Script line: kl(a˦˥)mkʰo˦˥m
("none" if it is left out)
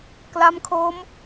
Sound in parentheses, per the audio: a˦˥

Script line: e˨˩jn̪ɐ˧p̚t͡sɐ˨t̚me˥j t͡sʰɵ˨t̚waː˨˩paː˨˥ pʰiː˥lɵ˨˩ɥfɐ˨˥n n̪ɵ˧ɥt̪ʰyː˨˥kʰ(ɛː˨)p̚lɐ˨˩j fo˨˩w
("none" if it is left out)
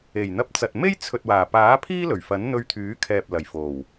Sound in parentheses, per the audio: ɛː˨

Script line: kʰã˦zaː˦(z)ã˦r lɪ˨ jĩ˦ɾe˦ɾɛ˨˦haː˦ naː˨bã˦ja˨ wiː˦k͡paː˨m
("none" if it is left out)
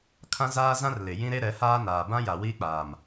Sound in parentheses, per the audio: z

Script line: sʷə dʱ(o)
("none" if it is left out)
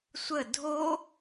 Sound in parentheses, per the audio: o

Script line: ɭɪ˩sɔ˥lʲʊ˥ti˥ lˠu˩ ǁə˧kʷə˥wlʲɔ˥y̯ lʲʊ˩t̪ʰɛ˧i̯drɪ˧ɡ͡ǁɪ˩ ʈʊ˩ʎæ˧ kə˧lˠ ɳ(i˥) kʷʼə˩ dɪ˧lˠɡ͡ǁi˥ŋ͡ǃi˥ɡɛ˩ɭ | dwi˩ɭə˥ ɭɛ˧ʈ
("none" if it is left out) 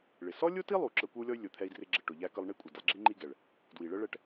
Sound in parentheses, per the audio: i˥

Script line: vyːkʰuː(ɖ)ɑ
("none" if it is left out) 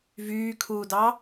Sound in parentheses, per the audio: d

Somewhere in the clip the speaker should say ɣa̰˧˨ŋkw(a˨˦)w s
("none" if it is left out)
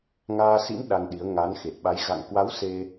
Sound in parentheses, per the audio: a˨˦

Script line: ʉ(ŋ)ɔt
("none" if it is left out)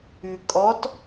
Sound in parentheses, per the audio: kʼ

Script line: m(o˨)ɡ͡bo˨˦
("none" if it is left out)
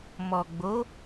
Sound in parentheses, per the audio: ɔ˨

